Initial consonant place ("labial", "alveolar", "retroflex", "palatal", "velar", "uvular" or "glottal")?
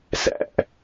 alveolar